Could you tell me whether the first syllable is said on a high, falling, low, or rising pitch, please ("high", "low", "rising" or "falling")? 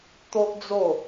high